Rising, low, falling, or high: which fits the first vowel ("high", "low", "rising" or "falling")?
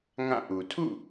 falling